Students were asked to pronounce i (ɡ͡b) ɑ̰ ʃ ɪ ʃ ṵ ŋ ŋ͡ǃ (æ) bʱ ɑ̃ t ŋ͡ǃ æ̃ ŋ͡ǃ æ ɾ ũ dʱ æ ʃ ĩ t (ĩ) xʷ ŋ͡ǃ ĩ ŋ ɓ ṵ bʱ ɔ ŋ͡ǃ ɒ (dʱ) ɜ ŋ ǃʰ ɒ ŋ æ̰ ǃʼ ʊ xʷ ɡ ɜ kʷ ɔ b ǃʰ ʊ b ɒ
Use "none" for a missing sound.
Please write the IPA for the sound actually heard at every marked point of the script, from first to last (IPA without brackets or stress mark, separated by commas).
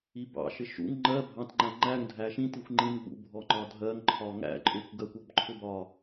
b, ɜ, i, dʱ